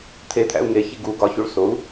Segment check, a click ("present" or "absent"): absent